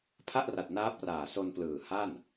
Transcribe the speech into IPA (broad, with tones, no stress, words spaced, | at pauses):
pʰa˥˩ʔra˨˩t̚ naː˦˥p̚raː˨˩ so˧nplɯː˨˩ ha˥˩n